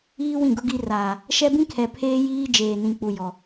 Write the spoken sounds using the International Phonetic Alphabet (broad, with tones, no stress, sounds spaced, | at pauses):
iː˦ w ĩ˦˨ ɡ ʊ˦ ɡ i˦ r aː˨ | ʃ ɛ˦ b ĩ˦ kʰ ɛ˨ pʰ eː˦ j iː˦ d͡ʒ eː˨ n ĩ˨ k͡p u˨ j ɔ˨